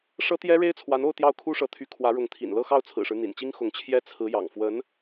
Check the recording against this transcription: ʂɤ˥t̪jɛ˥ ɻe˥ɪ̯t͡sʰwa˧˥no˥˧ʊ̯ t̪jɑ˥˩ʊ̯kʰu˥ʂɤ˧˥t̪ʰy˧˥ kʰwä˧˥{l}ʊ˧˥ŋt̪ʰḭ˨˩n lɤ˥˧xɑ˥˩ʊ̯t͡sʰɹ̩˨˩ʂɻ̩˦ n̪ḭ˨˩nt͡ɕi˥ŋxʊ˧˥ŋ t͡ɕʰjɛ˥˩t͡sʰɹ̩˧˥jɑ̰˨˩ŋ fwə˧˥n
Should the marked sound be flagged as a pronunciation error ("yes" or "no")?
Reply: yes